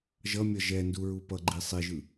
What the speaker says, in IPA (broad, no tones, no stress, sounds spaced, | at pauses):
ʒ ʌ mʲ ʌ ʒ ɛ n d u ɹ u p ʌ ɡ͡ǃ i sˤ i ʒ ɯ